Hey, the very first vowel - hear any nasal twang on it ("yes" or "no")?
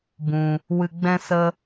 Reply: yes